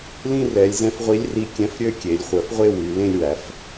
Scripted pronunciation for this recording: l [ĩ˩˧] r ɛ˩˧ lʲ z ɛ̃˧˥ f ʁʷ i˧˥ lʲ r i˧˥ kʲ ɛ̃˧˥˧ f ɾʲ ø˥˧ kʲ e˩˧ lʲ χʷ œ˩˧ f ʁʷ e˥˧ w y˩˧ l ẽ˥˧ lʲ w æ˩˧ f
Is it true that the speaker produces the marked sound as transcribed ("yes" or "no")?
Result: no